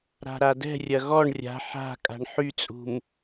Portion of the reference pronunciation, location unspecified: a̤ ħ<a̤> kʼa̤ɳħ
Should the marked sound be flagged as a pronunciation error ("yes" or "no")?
no